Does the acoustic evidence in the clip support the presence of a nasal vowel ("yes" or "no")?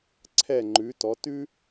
no